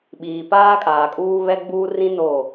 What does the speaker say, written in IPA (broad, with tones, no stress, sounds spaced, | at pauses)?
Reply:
ɓ iː˨ p aː˦ kʼ aː˨ kʼ uː˦ β ɛ˦ ɡ͡b uː˦ r ĩ˦ n o˦˨